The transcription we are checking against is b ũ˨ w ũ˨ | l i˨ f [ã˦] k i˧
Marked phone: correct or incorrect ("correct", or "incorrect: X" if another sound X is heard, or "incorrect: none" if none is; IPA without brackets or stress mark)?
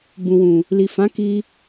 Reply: incorrect: ã˨˦